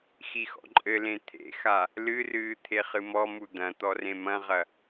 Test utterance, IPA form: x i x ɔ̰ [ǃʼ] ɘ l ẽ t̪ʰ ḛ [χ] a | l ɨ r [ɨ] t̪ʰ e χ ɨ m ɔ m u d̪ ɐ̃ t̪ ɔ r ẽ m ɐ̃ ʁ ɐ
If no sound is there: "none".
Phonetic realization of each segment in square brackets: ǃʼ, x, ɨː

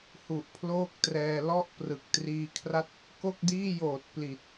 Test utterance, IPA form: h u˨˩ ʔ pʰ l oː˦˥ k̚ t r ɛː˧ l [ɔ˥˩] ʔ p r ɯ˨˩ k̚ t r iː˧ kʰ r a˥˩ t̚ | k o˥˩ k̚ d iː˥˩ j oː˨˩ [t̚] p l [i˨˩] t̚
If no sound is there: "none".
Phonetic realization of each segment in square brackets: ɔ˥˩, t̚, i˨˩

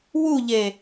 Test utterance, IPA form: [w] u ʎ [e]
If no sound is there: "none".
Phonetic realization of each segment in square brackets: w, e

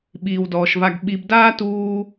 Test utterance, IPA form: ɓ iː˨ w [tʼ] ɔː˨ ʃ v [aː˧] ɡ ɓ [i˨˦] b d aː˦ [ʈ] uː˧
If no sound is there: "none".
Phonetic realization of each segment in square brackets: d, a˧, i˧, t

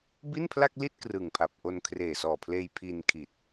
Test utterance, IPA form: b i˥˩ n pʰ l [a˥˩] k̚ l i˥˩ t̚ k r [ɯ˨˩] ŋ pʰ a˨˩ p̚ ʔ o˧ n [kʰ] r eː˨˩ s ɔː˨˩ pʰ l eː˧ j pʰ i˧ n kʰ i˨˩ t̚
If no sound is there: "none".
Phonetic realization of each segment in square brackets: a˥˩, ɯ˨˩, kʰ

